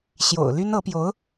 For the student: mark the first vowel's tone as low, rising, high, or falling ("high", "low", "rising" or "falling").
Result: low